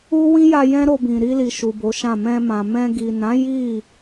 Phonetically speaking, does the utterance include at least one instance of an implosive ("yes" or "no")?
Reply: no